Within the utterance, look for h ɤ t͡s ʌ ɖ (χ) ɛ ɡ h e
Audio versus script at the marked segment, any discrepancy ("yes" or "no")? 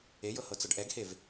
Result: yes